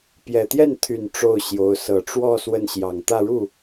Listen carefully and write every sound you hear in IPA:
p j ɛ˨˩ t̪ j ɛ˥˩ n t̪ʰ y˨˩ n ʈ͡ʂ o˥˩ ʊ̯ ɕ j o˧˥ ʊ̯ s ɤ˨˩ ʈ͡ʂ w ɔ˥˧ s w ə˥˩ n ɕ j ɑ˨˩ ŋ t̪ ä˥˧ ɻ u˥˩

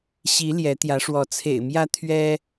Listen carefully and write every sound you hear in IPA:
ɕ i˨˦ l j ɛ˨˦ t̪ j ä˨˦ ʂ w ɔ˨˦ t͡sʰ ḛ˨˩ ɪ̯ m j ä˦ t̪ʰ ɥ ɛ˦

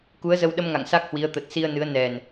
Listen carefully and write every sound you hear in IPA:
k u˨˦ ə̯ z ə˧ w ɗ ə˧ m ŋ a̰˧˨ ŋ s a˦˥ k̚ h w i˨˦ ə̯ t̪ ə˨˩ t̚ s i˧ ə̯ n ɨ˨˦ ə̯ n ɛ˨˩ n

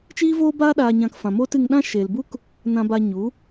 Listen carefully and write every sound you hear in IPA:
t͡ʃ iː˦ v oː˦ b aː˦ ɗ aː˧ ɲ ã˧ k f ã˨ m oː˦ t ɨ˧ ŋ ɗ ã˦ ʃ e˨ l b u˦ k | n ã˧ b a˧ ɲ u˨˦

